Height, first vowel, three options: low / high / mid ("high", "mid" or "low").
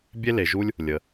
mid